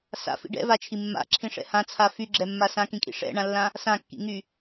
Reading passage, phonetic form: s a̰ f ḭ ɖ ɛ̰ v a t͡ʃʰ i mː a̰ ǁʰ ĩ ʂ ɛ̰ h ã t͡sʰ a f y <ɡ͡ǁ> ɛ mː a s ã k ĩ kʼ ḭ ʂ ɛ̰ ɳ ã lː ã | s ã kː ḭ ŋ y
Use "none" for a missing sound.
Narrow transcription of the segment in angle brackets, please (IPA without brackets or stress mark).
ɡ͡ǁ